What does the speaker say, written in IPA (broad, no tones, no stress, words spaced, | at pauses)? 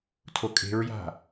tʰokʼe̤ɹja̤